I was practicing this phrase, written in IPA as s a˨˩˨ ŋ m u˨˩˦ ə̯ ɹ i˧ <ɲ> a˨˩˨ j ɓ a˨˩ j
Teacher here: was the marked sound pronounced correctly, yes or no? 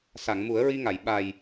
no